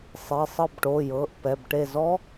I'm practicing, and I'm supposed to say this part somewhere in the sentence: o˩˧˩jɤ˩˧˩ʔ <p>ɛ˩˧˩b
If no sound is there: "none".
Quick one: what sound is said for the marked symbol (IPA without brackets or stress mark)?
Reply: p